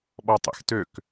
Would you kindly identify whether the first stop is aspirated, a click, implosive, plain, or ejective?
implosive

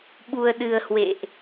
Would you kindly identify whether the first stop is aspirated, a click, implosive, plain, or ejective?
implosive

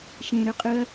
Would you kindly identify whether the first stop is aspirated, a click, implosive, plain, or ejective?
ejective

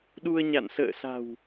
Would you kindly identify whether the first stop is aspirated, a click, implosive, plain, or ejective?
implosive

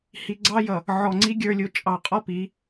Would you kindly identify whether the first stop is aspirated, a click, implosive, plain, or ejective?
click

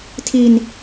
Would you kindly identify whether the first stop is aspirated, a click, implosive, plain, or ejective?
aspirated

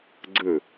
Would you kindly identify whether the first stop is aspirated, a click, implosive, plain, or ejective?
click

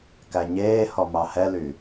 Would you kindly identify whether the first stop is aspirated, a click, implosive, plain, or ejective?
plain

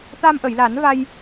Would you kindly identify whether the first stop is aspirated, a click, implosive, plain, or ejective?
plain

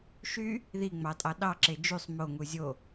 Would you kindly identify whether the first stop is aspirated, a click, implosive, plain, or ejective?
ejective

